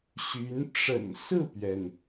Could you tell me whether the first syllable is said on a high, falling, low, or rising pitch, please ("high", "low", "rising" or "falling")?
rising